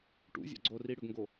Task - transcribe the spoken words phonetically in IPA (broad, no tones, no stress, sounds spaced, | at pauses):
ʈ ṵ zʲ a̰ ɡ͡ǀ o r i ɽ ʏ ɡ ŋ ɡ o